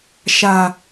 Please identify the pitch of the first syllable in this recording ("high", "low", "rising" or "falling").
low